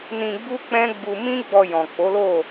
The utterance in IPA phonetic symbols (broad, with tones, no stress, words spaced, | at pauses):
nĩ˧ɡ͡bu˦k͡pɛ̃˦ɡ͡bu˧ mĩ˦ ɡ͡bɔ˧jɔ̃˨k͡po˨˦lo˦˨